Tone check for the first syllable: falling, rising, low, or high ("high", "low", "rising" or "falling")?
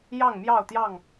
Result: falling